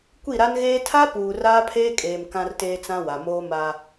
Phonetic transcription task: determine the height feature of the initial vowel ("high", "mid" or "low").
high